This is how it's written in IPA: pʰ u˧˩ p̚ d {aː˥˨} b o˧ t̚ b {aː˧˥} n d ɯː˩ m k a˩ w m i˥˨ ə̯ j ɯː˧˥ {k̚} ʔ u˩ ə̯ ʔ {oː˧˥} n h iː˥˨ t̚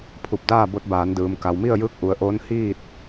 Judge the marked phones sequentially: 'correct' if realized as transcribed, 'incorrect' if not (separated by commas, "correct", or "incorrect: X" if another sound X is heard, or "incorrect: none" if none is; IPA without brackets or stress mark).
correct, incorrect: aː˩˧, correct, correct